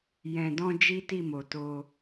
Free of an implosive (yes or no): yes